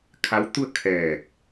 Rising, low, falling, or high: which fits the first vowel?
rising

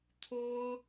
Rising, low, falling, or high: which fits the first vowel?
high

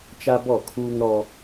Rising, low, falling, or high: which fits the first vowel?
high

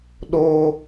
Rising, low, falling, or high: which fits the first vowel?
high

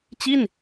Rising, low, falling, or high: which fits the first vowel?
falling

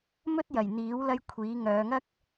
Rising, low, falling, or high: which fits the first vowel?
high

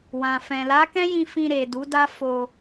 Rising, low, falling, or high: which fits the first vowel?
low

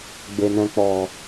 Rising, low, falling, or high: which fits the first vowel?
low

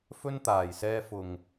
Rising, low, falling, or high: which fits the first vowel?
high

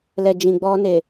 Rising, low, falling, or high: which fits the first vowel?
low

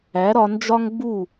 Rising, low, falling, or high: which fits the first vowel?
rising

